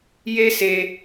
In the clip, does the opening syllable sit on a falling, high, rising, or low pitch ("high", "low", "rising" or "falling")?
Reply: high